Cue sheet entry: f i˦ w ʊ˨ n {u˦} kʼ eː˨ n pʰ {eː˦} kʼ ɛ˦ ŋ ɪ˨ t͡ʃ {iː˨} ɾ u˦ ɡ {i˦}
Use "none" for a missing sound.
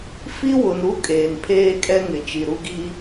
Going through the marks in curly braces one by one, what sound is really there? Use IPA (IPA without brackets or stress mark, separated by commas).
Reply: u˦, eː˦, i˨, i˦